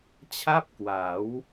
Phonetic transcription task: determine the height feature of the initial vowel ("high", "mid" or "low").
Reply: low